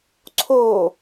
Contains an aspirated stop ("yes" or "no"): yes